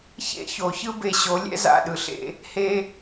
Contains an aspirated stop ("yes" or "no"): no